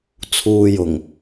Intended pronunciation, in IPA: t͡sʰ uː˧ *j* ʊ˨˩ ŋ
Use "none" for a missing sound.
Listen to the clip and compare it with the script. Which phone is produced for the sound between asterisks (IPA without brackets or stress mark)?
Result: j